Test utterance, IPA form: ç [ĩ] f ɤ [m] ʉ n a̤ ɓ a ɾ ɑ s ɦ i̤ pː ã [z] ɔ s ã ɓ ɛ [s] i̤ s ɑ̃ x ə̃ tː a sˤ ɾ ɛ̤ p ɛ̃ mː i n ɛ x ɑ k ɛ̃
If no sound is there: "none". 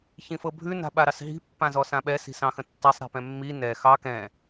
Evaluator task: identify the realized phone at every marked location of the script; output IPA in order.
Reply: ĩ, bʱ, z, s

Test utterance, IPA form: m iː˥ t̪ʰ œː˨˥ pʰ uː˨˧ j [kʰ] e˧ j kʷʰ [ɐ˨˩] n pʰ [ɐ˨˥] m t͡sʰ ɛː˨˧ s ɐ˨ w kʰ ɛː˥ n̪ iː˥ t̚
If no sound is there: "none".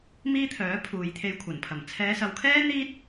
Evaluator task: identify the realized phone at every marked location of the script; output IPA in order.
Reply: t̪ʰ, ɐ˨˩, ɐ˨˩

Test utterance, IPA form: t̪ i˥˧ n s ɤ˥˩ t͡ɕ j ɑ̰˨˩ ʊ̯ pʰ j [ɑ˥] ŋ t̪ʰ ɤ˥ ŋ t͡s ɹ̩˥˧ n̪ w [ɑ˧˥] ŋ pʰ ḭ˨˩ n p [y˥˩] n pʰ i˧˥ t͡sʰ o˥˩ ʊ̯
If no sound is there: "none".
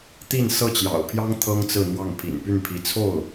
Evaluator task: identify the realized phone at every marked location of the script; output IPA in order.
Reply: ɑ˥, ɑ˥˩, y˥˩

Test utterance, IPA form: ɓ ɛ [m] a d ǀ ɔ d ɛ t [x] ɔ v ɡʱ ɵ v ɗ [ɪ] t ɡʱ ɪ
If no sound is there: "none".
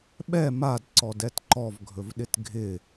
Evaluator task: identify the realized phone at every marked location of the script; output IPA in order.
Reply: m, ǃ, ɪ

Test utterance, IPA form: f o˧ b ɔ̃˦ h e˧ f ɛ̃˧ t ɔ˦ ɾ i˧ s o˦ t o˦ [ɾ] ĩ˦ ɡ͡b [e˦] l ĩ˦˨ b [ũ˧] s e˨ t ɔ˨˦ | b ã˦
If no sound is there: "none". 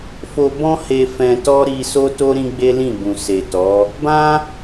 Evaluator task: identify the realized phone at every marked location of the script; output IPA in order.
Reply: ɾ, e˦, ũ˨

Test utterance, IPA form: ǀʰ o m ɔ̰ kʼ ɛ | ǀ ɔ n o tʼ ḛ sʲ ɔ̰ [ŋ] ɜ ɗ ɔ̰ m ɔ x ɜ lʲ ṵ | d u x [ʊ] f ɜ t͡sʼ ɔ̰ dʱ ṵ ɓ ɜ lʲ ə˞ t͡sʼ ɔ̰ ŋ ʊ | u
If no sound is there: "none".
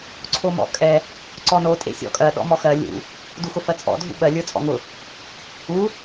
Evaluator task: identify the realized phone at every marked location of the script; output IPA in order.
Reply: kʼ, ʊ

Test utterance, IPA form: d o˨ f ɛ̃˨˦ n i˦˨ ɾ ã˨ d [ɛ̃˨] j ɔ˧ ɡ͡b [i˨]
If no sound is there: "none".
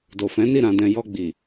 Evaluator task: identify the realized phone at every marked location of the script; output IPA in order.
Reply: ɛ̃˨, i˨

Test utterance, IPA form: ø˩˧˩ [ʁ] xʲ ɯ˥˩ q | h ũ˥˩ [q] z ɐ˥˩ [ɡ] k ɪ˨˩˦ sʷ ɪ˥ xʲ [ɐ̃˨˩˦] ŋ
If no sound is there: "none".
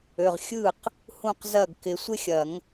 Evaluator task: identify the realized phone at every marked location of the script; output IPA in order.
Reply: ʁ, q, ɡ, ɐ˨˩˦

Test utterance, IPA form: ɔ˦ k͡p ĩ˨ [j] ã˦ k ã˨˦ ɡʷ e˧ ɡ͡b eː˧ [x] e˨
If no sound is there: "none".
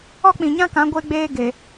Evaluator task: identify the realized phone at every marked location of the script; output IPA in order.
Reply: ɲ, ɡ

